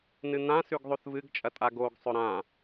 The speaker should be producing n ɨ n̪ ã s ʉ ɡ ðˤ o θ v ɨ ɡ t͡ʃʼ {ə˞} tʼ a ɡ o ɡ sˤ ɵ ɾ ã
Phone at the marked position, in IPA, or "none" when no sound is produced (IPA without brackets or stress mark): ɐ